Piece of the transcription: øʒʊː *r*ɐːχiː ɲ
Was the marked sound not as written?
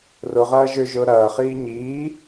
yes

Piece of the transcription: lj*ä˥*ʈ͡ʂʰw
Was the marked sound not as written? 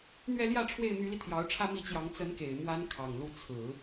yes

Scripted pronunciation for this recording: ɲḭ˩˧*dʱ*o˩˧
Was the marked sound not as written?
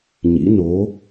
yes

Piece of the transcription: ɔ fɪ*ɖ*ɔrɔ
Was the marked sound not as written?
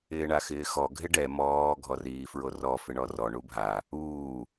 yes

